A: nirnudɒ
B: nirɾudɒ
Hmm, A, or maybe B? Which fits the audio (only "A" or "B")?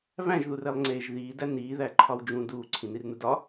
A